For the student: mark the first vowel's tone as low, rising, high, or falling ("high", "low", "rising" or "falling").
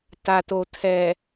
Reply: low